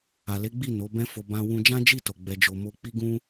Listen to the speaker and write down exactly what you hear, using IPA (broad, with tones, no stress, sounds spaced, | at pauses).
a˨ l e˨˦ ɡ͡b i˦˨ n o˨˦ b ɛ̃˦ f o˧ b ã˧ w ũ˧ d͡ʒ ã˦ d͡ʒ i˦˨ t o˨ ɡ͡b ɛ˧ d͡ʒ o˧ m o˧ k͡p i˦ ɡ ũ˦